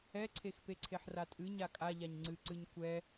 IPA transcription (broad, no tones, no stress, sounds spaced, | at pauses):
ɛ ǀʰ e x p e ǀʰ e ħ r a tʼ ɨ ɲ a kʼ a ʎ a ɲ ŋ͡ǀ ɨ ǀ ɨ ɲ kʷ ɛ